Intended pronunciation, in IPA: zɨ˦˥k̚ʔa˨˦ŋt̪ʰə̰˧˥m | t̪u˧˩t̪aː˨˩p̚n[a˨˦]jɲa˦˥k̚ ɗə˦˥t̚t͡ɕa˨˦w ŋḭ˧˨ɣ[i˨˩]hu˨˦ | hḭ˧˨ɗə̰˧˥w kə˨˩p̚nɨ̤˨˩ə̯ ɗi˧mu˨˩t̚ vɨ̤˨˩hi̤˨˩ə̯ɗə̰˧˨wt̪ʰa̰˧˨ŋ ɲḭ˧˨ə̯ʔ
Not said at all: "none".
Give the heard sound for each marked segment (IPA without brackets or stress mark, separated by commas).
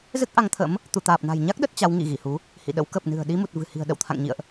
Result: a̤˨˩, i˧˩